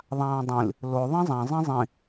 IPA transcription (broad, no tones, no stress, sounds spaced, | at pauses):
ðˤ ãː dˤ ĩ l | l o ðˤ ĩ zˤ ã zˤ ĩ zˤ ĩ